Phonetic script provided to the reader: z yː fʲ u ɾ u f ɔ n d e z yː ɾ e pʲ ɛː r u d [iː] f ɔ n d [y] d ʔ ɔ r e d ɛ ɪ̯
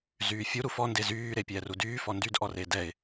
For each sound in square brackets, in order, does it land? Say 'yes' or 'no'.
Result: no, yes

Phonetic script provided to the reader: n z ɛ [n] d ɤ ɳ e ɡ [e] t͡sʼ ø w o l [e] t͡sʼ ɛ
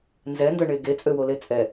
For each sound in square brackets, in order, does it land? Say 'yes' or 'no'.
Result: yes, yes, yes

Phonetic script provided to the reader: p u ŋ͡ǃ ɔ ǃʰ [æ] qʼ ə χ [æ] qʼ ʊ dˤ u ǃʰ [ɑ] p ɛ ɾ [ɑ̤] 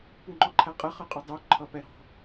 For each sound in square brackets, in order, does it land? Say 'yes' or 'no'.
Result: yes, no, no, yes

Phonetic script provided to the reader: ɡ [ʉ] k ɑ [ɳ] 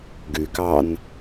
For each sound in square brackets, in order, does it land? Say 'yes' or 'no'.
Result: yes, no

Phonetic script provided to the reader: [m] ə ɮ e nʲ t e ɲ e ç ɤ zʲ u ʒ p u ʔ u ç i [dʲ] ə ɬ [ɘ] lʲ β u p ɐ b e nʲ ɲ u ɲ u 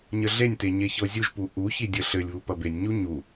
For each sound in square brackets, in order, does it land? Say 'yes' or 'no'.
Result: no, yes, yes

